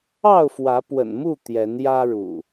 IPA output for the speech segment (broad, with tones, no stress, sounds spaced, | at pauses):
ɑ˥˨ ʊ̯ f w ä˨˦ p w ə̰˨˩ n m u˥˨ t̪ j ɛ˨˦ n j ä˦ ɻ ṵ˨˩